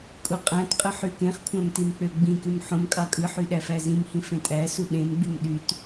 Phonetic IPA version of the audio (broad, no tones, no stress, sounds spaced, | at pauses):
kʼ u qʼ æ̃ t qʼ ɯ ħ y k ẽ χ kʷʰ æ̃ m t i m k͡p ø ɡ͡b ĩ k y m ħ õ m kʼ ɑ kʼ ɯ ħ y ɗ æ f æ z ĩ m h ĩ f ẽ tʼ æ s u ɗ ẽ m ɡ͡b y m ɗ y t